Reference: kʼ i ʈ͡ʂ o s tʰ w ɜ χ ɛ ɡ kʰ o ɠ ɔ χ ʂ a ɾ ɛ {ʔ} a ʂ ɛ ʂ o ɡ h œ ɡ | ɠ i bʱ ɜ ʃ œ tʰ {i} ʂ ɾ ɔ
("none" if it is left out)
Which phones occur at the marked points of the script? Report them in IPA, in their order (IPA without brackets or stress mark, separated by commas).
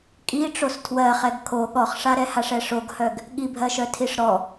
h, i